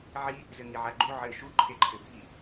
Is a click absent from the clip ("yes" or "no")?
no